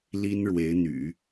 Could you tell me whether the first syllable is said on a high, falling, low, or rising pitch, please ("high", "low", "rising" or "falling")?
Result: high